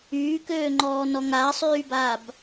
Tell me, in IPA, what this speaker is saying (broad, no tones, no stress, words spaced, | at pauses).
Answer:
yːkøːŋ͡ǃɔː nɔŋaːsˤyːbaːb